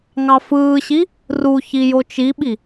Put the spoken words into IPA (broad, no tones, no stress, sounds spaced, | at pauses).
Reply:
ŋ ɑ f ɯː ɕ i | r u ç i j o t͡ʃ i ɓ i